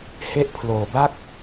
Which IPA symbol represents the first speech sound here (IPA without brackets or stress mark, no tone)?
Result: h